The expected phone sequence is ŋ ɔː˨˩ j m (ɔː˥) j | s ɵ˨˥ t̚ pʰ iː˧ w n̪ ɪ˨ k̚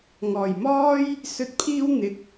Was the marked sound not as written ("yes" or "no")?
no